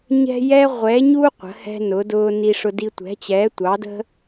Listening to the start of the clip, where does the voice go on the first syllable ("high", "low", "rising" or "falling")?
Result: high